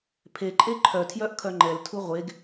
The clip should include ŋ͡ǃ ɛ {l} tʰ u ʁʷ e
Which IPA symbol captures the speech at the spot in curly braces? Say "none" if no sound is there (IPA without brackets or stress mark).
l